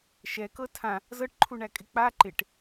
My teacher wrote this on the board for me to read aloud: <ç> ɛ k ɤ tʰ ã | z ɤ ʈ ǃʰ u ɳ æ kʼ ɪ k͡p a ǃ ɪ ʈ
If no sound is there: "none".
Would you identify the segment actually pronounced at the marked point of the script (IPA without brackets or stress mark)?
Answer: ʃ